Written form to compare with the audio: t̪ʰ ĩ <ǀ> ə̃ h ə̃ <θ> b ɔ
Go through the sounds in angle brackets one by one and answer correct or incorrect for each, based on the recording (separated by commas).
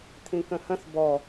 incorrect, correct